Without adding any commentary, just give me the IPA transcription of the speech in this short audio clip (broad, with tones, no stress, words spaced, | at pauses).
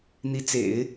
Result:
n̪i˧˥t͡sḛ˨˩˦ɪ̯